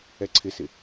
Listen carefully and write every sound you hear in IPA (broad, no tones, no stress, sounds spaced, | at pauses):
ɛ ǀʰ ɪ s ɪ